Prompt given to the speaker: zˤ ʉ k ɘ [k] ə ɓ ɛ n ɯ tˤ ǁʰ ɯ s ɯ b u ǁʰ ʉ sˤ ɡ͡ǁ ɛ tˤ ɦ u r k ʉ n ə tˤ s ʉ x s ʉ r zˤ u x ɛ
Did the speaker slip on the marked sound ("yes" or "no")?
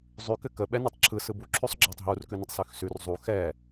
no